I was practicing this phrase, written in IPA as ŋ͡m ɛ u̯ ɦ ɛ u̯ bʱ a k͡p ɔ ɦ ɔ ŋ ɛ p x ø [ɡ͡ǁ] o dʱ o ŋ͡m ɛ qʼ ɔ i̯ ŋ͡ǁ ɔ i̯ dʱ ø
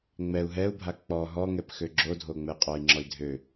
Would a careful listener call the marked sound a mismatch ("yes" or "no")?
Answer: no